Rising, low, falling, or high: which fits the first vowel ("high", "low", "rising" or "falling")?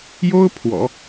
high